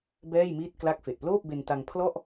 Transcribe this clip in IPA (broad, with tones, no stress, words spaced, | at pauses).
bɛː˥˩jmiː˥˩t̚ kla˦˥k̚fe˨˩ʔploː˥˩p̚ be˧n ta˧ŋ pʰlɔ˥˩ʔ